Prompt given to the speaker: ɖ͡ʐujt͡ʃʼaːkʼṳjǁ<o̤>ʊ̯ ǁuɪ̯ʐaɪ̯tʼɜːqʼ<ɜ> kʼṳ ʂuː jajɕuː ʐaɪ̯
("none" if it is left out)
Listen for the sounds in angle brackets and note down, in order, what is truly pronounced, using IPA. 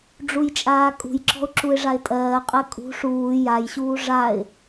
ɔ̤, ɜ

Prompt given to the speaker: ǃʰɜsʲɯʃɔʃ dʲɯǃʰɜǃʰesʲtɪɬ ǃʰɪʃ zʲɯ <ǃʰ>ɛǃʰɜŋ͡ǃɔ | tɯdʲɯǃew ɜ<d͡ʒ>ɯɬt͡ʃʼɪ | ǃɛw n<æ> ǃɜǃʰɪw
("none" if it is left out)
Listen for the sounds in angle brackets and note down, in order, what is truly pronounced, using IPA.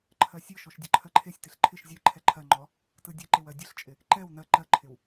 ǃʰ, dʲ, ɜ

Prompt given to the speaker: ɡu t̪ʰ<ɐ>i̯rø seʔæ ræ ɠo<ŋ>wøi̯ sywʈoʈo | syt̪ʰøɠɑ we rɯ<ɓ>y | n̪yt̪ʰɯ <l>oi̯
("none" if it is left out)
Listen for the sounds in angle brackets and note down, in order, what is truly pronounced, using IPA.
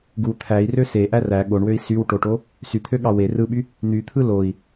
æ, ɳ, ɓ, l

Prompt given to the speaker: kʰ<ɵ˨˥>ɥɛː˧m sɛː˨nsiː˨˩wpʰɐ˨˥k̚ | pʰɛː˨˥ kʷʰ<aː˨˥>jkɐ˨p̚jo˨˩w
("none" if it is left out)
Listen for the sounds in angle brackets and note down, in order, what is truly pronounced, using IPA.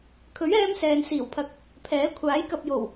ɵ˨˥, aː˨˥

